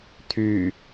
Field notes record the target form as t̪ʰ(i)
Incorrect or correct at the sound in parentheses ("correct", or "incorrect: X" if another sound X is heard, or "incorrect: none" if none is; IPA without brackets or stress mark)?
incorrect: y